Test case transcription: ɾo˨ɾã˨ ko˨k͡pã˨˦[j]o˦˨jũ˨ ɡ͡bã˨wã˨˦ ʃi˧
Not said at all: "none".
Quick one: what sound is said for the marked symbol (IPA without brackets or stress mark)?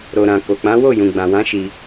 w